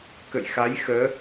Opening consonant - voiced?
no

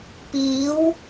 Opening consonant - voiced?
no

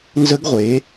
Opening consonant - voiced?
yes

